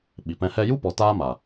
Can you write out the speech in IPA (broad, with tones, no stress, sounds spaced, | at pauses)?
ɓ i˨ p ɛ̃˧ h ɛ˧ j u˦ p ɔ˨ t aː˦ m a˨